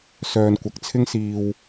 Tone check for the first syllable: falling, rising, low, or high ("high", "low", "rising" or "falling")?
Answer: low